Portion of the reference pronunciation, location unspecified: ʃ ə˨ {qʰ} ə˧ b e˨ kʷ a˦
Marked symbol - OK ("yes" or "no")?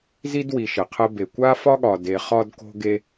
yes